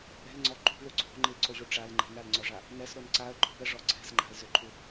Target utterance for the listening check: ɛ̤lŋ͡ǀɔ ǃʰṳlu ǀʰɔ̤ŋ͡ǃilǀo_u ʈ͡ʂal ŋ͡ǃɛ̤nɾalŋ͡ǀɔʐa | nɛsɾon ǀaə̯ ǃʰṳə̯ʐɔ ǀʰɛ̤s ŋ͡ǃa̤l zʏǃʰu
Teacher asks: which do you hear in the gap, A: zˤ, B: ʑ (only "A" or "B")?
B